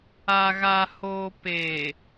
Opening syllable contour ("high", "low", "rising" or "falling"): low